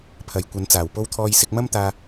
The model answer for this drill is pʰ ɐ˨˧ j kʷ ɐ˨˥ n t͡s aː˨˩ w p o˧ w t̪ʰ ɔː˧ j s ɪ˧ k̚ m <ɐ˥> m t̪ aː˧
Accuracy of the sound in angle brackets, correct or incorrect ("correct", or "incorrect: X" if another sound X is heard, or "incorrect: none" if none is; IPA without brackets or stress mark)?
correct